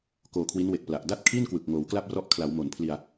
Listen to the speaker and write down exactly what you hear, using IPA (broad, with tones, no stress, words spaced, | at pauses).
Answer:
koː˧kʰwi˦˥nwe˨˩k̚pla˨˩ʔ da˥˩t̚kʰi˥˩n kwɯ˨˩k̚ ŋoː˩˦wkla˥˩p̚rɔ˦˥ʔkʰla˩˦w mo˩˦npʰli˧a̯